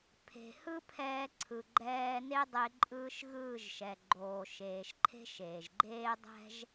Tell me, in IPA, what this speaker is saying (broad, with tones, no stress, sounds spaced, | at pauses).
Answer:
pʰ e̤˨ h ɯ˦ pʰ ɛː˧ ǀʰ ɯ˨ ɡ͡ǃ ɛː˧ n e˦ dˤ e˧ ǃʼ ɯː˧ ʃ ɣ ɯː˦˨ ʒ ʃ ɛ˨ ɡ͡ǃ oː˨ ʃ eː˨ ʃ ǃʰ e̤˦ ʃ eː˨ ʒ ɡ͡ǃ eː˦ dˤ ɛ̤˦ ʒ